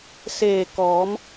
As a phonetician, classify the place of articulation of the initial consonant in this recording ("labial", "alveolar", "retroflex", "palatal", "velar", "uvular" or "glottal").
alveolar